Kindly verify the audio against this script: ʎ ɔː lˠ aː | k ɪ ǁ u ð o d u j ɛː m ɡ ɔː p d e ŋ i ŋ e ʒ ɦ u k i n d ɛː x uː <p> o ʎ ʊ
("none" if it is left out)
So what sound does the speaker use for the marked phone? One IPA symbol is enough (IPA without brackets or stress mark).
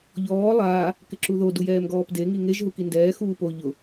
p